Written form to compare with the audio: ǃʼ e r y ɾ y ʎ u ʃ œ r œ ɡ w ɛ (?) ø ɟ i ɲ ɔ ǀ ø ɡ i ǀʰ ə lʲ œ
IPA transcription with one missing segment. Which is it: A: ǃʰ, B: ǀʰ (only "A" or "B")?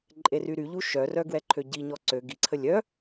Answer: A